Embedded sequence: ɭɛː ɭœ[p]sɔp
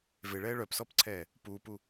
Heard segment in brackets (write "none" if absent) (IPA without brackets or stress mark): p